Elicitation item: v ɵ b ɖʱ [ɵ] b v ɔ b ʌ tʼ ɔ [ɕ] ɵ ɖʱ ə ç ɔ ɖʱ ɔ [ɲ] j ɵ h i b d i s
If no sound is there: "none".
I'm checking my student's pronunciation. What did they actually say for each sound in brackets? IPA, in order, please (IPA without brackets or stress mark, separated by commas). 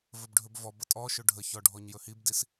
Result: ɵ, ʃ, ɲ